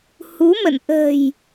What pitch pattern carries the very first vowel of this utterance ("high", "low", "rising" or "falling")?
rising